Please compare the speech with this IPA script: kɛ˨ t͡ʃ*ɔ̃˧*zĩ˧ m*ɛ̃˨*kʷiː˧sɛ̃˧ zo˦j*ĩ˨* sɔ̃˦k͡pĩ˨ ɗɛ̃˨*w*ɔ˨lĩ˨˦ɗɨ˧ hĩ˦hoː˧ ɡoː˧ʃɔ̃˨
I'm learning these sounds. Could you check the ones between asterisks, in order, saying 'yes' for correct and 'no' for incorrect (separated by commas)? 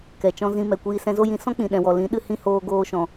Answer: yes, no, no, yes